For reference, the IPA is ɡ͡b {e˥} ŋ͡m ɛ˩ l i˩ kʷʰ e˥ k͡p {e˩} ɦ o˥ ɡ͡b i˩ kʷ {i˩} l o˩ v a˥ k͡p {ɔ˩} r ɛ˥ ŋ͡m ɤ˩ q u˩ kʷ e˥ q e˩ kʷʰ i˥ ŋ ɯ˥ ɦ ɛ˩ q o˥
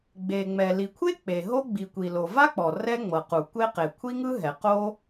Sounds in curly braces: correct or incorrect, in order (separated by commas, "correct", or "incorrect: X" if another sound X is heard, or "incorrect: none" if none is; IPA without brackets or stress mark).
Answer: incorrect: e˩, correct, correct, correct